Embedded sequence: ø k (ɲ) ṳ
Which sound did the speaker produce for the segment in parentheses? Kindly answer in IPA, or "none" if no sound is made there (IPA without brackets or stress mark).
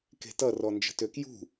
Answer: j